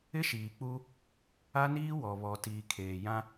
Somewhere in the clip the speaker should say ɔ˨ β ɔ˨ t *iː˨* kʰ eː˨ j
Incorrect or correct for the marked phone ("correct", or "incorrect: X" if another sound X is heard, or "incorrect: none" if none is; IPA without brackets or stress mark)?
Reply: correct